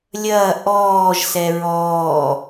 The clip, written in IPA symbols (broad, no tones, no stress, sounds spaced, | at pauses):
lʲ ɐː ʔ ɔː ʒ s ɛ ɹ ɔː